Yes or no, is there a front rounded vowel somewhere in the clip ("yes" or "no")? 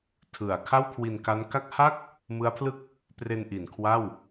no